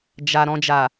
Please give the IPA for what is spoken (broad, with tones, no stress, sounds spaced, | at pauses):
d͡ʒ a˨ ɾ ɔ̃˨ d͡ʒ a˨